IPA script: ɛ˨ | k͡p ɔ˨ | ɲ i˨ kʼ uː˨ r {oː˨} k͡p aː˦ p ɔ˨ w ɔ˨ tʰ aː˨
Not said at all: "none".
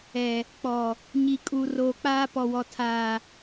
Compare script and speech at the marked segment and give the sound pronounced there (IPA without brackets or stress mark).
oː˨